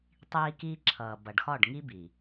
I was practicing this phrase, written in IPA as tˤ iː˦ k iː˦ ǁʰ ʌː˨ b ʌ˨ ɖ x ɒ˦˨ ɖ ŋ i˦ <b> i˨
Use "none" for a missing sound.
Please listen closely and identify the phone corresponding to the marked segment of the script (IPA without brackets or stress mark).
b